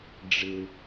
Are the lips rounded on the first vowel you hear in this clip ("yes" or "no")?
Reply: no